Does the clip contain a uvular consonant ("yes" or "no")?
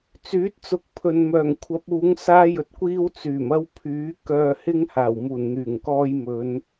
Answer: no